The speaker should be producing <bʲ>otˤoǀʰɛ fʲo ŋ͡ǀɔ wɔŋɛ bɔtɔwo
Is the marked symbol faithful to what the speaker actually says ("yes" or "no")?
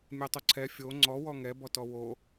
no